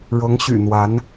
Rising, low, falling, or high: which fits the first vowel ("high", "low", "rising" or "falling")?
rising